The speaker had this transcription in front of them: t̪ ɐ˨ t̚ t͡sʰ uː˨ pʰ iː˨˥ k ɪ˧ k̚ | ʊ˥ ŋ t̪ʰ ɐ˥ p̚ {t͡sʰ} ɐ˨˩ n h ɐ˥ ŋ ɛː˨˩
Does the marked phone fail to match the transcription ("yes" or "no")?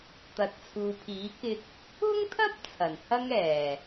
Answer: no